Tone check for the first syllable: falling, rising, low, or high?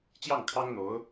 falling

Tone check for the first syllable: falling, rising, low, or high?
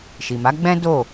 low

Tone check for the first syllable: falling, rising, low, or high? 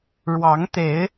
rising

